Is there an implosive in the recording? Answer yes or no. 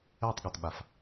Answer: yes